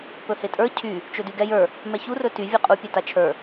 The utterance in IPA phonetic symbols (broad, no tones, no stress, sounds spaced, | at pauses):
p ɵ h e tʼ ə˞ cʰ y | t͡ʃ ɵ d y ɡ ɛ j ə˞ | m ɛ ç u r ɵ t y vʲ e qʼ u pʲ e t a t͡ʃʰ ə˞